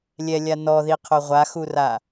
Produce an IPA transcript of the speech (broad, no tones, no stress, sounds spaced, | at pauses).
lʲ ɛ lʲ a n ɔ ð i qʰ o ʁʷ a x u r a